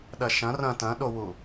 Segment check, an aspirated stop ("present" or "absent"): absent